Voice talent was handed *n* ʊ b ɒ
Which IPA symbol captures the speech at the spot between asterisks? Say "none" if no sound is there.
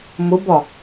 m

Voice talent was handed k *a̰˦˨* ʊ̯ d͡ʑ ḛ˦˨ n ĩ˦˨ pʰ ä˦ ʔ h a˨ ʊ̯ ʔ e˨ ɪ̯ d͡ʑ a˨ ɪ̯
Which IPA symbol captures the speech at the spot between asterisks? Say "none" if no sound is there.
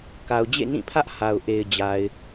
a˨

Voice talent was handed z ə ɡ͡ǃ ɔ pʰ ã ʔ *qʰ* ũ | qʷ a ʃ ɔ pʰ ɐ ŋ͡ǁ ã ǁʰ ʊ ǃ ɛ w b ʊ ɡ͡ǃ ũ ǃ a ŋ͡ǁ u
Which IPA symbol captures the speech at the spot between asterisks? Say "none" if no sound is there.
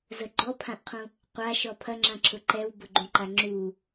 qʰ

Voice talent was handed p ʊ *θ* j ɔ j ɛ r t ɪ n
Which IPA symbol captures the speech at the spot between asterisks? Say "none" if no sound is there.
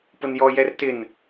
n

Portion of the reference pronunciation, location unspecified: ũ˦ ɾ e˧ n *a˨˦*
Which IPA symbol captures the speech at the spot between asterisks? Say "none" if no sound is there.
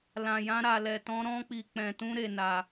a˧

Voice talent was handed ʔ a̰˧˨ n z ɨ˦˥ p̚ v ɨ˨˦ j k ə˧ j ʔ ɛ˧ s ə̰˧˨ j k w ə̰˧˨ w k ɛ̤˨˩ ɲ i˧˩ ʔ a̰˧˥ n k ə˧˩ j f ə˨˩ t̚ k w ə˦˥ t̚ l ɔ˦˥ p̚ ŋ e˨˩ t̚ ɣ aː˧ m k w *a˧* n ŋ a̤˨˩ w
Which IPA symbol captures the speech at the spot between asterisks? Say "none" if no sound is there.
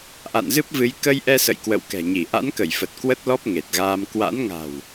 a̰˧˥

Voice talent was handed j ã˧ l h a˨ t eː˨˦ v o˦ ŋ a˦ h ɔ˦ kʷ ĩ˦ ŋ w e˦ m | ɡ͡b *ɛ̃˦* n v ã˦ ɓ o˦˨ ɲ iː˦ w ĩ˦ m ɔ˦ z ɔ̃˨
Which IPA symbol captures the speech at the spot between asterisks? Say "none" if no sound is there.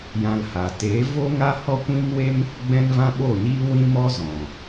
ɛ̃˦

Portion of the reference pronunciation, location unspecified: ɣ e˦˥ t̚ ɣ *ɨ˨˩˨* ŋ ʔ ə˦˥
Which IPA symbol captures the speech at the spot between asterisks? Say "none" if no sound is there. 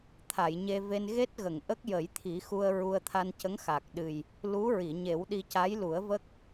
ə˨˩˨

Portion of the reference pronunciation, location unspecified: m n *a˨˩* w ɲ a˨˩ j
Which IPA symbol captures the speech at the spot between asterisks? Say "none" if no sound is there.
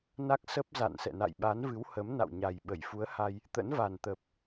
a̰˧˨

